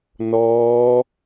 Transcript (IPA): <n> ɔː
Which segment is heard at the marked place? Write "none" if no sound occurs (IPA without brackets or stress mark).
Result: n